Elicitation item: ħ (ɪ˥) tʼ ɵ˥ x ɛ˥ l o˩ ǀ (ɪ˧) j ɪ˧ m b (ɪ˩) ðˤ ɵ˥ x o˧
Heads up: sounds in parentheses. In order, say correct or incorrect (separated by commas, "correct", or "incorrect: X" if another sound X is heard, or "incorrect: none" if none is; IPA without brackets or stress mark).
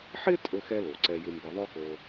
correct, incorrect: ɛ˧, incorrect: ɪ˧